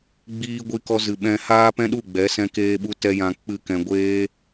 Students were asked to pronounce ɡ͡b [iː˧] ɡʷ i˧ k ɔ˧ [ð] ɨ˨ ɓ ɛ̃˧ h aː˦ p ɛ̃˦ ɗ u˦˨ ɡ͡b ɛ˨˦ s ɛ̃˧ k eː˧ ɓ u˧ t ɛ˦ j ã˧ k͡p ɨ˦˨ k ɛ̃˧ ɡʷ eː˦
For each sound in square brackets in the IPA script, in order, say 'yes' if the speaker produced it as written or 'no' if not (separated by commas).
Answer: yes, no